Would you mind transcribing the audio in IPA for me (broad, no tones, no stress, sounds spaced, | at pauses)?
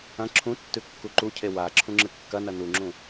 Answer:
ɐ̃ ǁʰ ũ tː ʉ kː u ǃ u cʰ e w a ǁʰ ũ ŋ͡ǁ ɨ kː ɐ n ɐ n u ŋ͡ǁ ũ